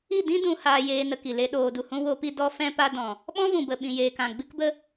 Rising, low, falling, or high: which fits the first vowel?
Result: falling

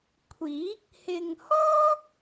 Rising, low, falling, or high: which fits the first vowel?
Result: rising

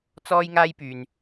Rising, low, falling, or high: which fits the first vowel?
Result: high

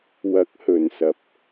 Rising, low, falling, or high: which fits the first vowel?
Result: rising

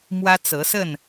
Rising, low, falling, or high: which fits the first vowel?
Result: high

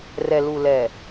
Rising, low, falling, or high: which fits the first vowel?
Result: low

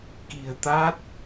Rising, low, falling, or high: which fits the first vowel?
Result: low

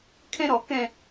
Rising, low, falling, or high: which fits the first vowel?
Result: high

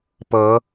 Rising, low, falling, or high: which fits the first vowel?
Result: rising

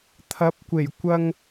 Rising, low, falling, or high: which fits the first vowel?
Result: rising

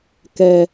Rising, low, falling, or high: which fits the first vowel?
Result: low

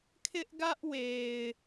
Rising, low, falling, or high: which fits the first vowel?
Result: high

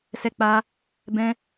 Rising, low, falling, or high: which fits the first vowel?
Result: high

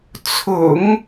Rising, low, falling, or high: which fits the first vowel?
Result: low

